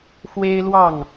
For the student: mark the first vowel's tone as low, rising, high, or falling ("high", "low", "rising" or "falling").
high